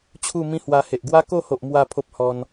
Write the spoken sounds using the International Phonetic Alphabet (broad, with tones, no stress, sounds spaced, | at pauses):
t͡ɕʰ u˥˧ m ĩ˦ h w a˧ h e˨ ʔ ɡ w a˦ k o˥˧ h o˨ ʔ m w a˥˧ pʰ o˦ p̚ h ɔ˧ n